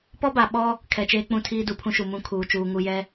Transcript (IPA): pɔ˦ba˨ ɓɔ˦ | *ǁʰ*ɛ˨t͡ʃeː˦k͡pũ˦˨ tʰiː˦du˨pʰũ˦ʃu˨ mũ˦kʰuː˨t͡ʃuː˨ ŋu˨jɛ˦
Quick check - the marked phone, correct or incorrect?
incorrect